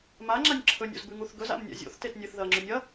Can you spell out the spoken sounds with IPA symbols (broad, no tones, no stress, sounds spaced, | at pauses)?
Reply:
m a ŋ͡ǁ a nʲ ǁʰ ɵ nʲ o̰ z b ʉ ŋ u θ ɡ ɵ z a̰ m nʲ a̰ zʲ o̰ θ t e t nʲ ɨ θ ð ɐ ŋ͡ǁ ɵ nʲ ɐ